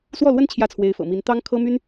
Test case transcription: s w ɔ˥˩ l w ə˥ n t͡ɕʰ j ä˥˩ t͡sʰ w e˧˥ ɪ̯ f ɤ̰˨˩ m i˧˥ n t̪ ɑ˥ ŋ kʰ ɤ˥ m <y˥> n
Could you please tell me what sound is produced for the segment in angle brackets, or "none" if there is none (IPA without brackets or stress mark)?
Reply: y˥